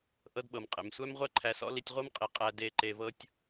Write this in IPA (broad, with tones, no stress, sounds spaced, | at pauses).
ʔ ɤ˧ d ɓ ɤ˩ m qʼ ḛ˩ m sʷ æ˥ m ʁʷ ɛ˥ ǃʰ æ˧ s ɔ̰˥ l i˧ tʲ ʁʷ ɤ˥ m qʼ i˩ qʼ æ˧ d e˧ ǃ e˧ v ɤ˥ tʲ